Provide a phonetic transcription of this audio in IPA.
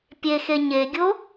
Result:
pʲ e x e ɲ e ɡʲ o

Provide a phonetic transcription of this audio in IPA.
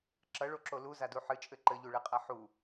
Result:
ǁ ɐ ɭ o ǁ o l u z a d u ħ ɨ t͡ʃʼ ɘ ǃ ɘ ʎ u ɭ ɛ qʼ a ħ u

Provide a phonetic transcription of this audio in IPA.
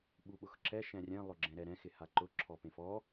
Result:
ɓ u ɓ ʊ x ǁ ɛ ʃ ɛ̃ rʲ ɛ̃ lˠ ʊ ɡ͡ǁ ɛ̃ ɾ ɛ ɾ ɛ̃ x ɪ h a ǃ ʊ ǁʰ ɔ p ẽ f ɔ

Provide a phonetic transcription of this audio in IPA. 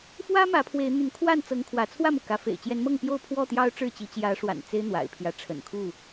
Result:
f w ä˦ m ä˨˦ pʰ w e˨˦ ɪ̯ n̪ y˨˦ n kʰ w a˥˨ n t͡s ɤ˨˦ ŋ kʰ w ä˨˦ t͡sʰ w ä˥˨ m u˩ k ä˨˦ f ḛ˨˩ ɪ̯ t͡ɕ j ɛ˨˦ n m ɤ˥˨ ŋ p j o˥˨ ʊ̯ pʰ w ɔ˥˨ t̪ j ɑ˦ ʊ̯ ʈ͡ʂ ɻ̩˥˨ t͡ɕ i˨˦ t͡ɕ j ä˨˦ ʂ w a̰˨˩ n t͡s e˦ ɪ̯ n̪ w a̰˨˩ ɪ̯ pʰ j ä˨˦ ʈ͡ʂʰ ə̰˨˩ n kʰ u˥˨

